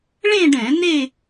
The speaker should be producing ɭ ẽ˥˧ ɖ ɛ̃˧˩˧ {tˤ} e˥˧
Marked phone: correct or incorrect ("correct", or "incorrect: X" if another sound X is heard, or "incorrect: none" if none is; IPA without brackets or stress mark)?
incorrect: n